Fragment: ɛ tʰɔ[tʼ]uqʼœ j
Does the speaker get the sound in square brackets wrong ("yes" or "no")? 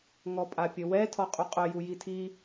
yes